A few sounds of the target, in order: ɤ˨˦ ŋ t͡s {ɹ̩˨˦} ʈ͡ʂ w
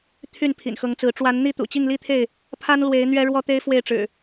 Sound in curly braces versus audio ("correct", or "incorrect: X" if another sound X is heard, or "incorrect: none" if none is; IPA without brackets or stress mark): correct